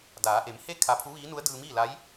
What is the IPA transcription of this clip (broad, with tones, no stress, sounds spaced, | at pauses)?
d aː˩˧ ʔ e˩˧ m h e˥˨ kʰ a˧ pʰ u˧˥ ʋ iː˧˥ n u˧˥ ə̯ d ɯː˧ m iː˥˨ l a˧˥ j